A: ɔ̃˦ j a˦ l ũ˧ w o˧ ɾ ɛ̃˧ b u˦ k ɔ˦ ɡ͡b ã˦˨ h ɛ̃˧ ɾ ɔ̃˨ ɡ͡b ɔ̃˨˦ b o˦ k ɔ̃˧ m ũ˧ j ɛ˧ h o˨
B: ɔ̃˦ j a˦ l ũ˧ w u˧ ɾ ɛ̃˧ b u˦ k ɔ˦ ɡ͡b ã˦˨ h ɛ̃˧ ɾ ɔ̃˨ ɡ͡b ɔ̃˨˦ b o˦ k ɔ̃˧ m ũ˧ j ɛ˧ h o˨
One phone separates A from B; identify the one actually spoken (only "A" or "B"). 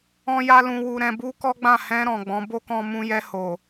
B